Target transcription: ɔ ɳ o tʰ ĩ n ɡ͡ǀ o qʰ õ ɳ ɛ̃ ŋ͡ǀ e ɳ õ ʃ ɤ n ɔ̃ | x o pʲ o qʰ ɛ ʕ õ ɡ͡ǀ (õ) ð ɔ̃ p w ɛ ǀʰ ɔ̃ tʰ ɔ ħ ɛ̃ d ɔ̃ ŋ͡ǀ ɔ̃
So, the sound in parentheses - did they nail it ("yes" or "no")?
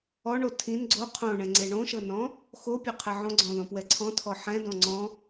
no